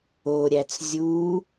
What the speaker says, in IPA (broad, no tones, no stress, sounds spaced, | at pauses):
o ɾʲ æ t͡s zʲ u